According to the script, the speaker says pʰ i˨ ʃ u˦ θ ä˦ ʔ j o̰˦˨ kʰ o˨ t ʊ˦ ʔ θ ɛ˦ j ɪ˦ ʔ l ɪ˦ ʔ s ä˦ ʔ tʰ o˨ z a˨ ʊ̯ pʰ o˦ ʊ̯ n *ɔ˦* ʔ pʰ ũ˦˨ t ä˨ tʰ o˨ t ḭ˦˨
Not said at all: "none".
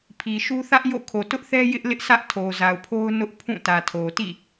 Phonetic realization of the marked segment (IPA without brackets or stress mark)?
ʊ˦